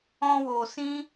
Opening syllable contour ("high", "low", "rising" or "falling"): high